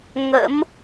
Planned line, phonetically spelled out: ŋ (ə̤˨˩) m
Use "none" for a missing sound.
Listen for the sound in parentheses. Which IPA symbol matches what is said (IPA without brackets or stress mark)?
ə̰˧˥